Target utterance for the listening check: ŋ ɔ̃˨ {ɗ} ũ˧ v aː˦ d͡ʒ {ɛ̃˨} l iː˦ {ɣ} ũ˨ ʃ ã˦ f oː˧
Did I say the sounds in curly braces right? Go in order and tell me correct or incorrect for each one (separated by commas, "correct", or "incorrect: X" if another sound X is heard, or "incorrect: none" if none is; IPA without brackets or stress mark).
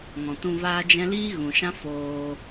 incorrect: t, incorrect: ɛ̃˦, correct